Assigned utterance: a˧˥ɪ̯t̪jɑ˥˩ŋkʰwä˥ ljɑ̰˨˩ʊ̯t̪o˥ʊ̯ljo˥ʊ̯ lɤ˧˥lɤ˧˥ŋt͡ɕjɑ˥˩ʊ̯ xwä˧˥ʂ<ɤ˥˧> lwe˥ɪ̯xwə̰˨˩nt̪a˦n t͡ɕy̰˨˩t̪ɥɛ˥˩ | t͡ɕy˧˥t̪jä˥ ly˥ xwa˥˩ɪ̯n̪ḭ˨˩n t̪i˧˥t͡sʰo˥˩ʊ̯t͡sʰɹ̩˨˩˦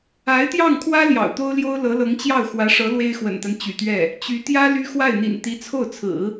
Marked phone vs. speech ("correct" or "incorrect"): incorrect